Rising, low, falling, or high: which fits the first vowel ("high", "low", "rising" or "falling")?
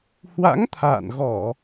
rising